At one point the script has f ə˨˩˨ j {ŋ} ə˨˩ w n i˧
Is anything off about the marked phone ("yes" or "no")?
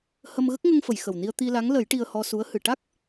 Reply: yes